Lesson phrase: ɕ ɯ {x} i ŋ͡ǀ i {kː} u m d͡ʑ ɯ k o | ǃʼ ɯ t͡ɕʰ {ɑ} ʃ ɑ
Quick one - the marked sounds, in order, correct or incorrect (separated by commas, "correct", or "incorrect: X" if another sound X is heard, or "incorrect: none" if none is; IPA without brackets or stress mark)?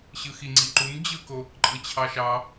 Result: correct, incorrect: ǃ, correct